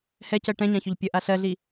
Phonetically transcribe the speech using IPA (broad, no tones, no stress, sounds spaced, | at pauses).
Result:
h ɛ c ɜ ʈ ɛ̃ ɲ ã ç ɵ ʎ pʲ ə ʔ a ɬ ɜ ɮ i